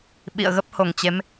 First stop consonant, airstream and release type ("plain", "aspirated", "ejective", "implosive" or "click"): implosive